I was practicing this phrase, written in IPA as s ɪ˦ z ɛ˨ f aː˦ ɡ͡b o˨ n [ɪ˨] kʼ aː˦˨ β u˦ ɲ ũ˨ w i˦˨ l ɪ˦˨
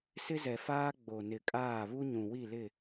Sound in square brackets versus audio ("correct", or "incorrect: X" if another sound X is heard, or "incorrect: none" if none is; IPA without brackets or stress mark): correct